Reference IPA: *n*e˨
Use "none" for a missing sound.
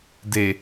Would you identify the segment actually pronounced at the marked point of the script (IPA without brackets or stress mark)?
d